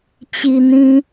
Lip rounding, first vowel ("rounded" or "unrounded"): unrounded